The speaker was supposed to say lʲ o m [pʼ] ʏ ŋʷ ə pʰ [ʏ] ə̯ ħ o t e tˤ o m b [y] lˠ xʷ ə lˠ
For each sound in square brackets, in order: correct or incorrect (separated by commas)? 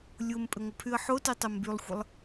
correct, incorrect, correct